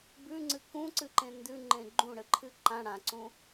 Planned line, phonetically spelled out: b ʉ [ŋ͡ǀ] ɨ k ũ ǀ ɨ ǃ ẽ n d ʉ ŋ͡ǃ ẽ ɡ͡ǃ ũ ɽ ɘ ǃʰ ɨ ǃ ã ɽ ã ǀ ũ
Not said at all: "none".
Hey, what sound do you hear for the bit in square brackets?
ŋ͡ǀ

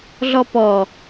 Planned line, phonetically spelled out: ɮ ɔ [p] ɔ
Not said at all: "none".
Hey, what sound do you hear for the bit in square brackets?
p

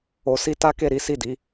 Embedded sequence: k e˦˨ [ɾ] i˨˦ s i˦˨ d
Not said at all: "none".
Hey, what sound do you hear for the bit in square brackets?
ɾ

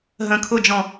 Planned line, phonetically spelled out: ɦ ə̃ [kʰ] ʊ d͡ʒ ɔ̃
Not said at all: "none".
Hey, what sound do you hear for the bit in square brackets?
kʰ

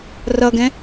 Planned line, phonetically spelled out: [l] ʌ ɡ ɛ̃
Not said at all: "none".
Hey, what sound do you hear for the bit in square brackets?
r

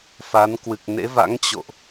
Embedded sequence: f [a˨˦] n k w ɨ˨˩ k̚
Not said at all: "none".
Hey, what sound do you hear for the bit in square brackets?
a˨˦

